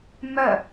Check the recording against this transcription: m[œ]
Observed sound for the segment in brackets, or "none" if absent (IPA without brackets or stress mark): œ